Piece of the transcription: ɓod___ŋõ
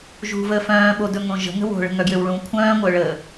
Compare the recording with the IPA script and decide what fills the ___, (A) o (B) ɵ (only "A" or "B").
B